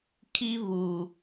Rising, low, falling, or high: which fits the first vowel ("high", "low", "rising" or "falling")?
high